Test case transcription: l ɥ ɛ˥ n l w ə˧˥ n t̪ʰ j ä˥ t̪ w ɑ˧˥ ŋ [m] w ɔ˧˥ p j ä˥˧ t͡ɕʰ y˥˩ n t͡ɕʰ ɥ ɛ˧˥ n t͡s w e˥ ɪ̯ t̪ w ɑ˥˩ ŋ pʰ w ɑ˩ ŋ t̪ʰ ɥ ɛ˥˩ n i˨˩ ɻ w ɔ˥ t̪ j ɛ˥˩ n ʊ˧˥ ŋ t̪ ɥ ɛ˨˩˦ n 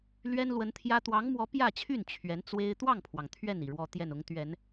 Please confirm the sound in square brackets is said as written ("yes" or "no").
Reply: yes